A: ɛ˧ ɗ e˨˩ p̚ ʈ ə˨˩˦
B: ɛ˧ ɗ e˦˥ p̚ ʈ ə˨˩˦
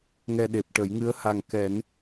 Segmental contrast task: A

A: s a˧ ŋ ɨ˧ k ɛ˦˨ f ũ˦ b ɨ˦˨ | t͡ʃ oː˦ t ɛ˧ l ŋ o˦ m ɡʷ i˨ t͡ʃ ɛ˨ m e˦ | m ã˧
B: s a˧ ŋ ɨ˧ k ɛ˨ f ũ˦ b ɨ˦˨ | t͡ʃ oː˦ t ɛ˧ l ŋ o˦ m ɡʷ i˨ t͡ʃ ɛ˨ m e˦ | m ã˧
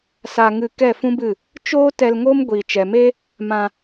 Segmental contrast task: A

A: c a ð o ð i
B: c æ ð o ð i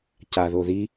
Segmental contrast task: A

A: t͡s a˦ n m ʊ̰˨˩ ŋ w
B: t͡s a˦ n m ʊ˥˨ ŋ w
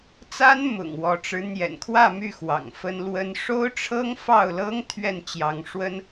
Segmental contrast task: A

